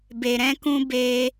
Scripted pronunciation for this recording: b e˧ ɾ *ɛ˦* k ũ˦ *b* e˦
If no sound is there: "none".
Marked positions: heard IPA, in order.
ɛ̃˦, b

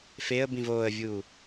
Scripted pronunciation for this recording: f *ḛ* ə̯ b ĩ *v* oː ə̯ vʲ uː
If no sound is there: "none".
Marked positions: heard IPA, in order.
e, v

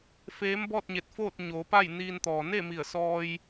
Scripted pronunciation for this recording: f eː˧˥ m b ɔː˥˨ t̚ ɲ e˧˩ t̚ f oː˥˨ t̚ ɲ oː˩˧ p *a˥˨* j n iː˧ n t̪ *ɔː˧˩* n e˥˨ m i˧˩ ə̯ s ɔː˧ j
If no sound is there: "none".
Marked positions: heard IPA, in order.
a˥˨, ɔː˩

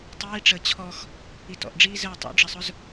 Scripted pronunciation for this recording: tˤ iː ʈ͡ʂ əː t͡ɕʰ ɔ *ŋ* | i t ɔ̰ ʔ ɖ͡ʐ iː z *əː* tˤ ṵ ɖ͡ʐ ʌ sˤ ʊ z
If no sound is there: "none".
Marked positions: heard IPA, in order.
x, əː

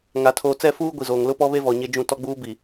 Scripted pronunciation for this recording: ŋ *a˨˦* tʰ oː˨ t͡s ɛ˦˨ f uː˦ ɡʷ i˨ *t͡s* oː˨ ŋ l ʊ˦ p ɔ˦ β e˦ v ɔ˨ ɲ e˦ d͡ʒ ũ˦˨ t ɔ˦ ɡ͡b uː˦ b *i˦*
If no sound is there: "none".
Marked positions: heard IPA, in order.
a˨˦, z, i˨

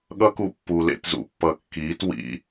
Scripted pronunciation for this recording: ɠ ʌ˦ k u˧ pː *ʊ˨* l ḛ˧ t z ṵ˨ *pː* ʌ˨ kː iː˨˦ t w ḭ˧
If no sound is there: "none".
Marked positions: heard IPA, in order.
u˨, pː

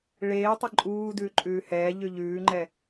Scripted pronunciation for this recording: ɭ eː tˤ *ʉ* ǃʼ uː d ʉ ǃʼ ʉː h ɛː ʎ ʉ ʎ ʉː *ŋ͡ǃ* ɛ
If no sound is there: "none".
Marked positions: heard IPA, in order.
ə, ŋ͡ǃ

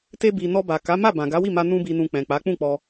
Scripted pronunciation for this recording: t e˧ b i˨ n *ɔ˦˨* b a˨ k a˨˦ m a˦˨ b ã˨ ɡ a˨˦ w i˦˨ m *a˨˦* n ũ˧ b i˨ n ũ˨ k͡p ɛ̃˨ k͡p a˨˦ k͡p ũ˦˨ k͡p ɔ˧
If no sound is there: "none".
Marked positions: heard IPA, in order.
ɔ˧, a˧

